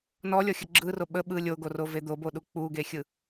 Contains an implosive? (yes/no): yes